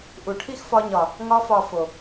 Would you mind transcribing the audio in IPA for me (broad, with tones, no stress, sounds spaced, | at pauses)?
ʔ u˨ ʈʰ i˦ x f ɒ˧ ɲ ɒ˨ | ŋ ɒ˧ f ɒ˨ f o˨